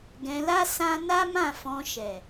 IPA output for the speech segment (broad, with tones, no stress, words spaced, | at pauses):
ɡɛ̃˧la˦ sã˦ na˦mã˦˨fɔ̃˧ ʃɛ˨